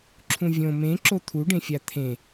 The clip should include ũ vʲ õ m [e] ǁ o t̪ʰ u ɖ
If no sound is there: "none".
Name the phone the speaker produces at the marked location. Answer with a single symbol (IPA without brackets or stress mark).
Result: ẽ